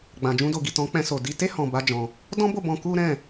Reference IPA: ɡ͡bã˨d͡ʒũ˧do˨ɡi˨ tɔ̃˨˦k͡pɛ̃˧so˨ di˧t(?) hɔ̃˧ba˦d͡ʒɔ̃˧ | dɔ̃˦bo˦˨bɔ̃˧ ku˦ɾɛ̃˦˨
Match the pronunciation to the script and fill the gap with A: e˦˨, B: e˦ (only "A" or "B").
B